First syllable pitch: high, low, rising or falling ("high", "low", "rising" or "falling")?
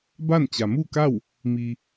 falling